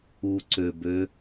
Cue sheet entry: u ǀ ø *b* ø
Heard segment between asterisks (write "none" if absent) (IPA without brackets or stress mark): b